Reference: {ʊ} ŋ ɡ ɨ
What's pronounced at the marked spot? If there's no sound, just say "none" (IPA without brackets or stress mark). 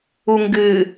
u